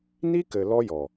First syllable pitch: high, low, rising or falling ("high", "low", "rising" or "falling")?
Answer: high